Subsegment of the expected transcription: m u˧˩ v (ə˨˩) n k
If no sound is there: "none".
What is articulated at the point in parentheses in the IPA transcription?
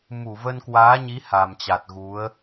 ə˧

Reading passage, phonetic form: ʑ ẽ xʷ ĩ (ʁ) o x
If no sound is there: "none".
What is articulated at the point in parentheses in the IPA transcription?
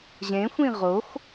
ʁ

